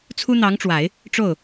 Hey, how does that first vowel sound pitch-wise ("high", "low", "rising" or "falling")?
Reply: high